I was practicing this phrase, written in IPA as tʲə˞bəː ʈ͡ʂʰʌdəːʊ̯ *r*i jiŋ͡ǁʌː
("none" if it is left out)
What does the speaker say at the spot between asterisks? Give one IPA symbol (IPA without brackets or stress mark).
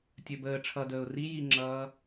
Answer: r